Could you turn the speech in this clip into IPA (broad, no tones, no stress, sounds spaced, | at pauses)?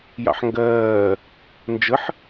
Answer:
j ɑ̰ ħ ŋ ɡ ɜː | n d͡ʒ ə ħ